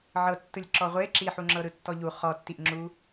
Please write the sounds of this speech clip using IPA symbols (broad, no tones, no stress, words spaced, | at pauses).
ʕɤtːɯlʲǁɔ ʁʷe ǁiħuŋ͡ǁɤ ɾɯtːɔʎu χɔtːiʔŋ͡ǁu